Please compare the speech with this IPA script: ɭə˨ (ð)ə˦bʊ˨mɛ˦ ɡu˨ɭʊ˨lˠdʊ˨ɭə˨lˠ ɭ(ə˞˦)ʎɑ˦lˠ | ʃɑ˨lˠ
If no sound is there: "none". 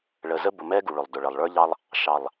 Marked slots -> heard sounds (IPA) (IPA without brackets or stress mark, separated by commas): z, ə˞˦